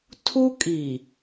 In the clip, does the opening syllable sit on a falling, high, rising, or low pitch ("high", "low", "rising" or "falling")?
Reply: high